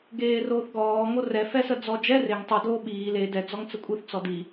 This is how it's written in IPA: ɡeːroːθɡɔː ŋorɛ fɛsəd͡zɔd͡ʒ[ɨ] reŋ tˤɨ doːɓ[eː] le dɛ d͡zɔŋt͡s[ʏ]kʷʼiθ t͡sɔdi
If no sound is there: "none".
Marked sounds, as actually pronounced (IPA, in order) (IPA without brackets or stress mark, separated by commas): ɛ, iː, ə